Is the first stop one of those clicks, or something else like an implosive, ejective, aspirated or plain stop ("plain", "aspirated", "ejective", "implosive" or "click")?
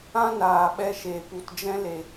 implosive